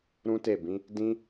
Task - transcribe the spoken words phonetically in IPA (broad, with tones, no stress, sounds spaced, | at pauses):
ɾ ũ˦ t e˦˨ b ĩ˨˦ | d ĩ˦